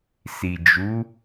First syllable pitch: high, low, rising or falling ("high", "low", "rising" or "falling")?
low